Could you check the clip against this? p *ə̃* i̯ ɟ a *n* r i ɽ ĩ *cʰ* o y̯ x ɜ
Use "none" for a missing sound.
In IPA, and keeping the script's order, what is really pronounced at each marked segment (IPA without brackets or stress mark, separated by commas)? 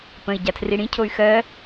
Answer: ə̃, tʰ, cʰ